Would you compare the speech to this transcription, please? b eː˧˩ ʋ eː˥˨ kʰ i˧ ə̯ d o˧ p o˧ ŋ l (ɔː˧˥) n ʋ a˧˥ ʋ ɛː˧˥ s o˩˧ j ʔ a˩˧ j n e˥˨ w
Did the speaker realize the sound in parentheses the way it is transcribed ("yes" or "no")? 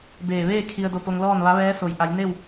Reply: no